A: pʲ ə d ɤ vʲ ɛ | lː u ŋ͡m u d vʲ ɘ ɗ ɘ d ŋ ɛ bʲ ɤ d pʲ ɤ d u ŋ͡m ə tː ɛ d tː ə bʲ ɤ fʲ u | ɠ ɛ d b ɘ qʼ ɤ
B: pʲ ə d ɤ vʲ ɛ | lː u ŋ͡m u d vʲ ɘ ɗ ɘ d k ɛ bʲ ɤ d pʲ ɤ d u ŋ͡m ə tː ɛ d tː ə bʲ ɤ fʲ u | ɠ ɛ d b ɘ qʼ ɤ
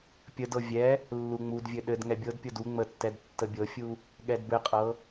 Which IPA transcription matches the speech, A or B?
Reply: A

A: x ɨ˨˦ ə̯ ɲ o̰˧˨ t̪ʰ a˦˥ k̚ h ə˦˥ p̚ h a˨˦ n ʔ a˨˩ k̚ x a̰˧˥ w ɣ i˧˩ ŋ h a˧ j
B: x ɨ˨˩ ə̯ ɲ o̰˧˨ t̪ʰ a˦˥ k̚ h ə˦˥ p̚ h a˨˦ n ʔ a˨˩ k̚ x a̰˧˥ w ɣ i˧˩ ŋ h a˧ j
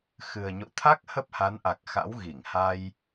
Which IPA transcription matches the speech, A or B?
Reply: B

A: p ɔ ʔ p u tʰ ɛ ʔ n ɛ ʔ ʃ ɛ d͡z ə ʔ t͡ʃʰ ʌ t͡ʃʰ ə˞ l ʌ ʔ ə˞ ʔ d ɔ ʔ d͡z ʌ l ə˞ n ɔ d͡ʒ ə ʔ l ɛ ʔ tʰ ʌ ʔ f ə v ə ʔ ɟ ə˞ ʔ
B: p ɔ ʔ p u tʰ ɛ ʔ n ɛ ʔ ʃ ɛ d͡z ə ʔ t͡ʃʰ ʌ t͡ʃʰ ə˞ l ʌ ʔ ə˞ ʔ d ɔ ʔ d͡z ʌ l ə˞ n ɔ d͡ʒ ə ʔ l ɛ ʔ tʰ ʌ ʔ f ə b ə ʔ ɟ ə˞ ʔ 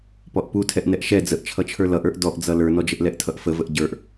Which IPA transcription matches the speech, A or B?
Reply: A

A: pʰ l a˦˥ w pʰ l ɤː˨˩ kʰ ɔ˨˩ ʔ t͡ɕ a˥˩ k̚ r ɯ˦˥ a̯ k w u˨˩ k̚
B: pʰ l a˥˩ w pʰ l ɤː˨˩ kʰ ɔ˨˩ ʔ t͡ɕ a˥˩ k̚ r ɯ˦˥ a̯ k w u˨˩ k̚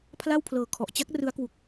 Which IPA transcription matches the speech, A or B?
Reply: B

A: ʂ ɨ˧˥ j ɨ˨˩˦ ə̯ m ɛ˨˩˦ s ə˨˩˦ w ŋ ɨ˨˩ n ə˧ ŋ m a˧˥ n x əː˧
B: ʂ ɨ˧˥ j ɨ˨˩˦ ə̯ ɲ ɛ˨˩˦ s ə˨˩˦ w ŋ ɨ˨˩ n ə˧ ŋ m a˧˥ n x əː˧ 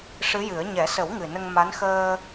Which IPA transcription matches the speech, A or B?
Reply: B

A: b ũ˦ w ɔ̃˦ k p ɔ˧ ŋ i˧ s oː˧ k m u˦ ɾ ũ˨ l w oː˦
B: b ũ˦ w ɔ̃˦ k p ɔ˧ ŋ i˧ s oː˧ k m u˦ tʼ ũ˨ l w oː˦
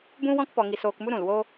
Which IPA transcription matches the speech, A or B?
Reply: A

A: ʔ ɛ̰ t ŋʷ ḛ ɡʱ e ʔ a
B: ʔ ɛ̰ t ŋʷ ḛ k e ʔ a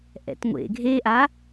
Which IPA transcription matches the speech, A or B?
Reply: A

